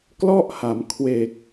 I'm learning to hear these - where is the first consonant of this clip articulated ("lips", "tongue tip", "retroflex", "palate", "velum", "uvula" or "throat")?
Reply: velum